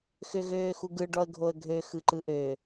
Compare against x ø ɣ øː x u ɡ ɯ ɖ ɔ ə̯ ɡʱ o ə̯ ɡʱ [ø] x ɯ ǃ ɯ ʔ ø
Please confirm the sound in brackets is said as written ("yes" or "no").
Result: yes